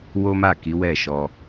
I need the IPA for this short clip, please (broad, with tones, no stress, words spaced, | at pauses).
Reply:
wo˦ma˦˨ki˨˦ wɛ˦˨ʃɔ˧